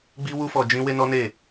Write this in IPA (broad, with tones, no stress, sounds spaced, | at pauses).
ɡ͡b i˦ w u˦ f ɔ˧ d͡ʒ ĩ˦ w e˦ n ɔ˦ n e˦˨